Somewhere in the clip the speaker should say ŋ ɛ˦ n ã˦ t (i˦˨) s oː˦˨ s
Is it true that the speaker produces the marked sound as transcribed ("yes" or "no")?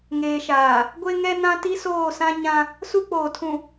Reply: no